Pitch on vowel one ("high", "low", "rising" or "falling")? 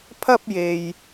high